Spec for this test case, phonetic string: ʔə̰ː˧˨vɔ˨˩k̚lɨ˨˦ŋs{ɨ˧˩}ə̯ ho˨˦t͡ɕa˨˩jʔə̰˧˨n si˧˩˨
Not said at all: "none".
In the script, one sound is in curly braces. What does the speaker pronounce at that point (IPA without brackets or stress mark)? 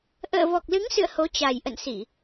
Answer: ɨ̰˧˨